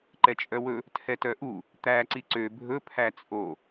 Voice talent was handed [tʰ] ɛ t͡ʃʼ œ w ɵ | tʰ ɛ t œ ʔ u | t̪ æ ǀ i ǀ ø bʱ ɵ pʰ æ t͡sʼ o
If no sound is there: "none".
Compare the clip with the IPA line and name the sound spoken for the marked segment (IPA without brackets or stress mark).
ǃ